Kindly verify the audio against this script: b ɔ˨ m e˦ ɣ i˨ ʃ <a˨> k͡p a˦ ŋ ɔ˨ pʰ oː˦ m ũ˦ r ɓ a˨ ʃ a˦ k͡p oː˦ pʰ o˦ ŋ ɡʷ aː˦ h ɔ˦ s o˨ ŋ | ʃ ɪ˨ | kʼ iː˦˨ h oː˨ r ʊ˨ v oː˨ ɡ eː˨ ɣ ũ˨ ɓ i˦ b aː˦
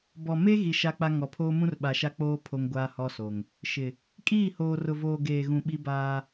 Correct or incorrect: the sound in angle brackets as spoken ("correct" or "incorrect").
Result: incorrect